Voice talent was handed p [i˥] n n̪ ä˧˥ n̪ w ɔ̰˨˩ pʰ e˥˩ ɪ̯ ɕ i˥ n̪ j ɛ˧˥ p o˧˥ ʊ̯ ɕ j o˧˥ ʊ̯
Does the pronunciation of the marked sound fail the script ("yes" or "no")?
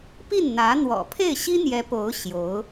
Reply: yes